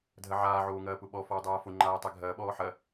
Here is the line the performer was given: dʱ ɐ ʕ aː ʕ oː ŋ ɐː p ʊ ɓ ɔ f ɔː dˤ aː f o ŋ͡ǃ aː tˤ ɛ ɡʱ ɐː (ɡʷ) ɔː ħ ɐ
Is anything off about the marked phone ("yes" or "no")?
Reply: yes